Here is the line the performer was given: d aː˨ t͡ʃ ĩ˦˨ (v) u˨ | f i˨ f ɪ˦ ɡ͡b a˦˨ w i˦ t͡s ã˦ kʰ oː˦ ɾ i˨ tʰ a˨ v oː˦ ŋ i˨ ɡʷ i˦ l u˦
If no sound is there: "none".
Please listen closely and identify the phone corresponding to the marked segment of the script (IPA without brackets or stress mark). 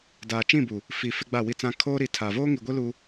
b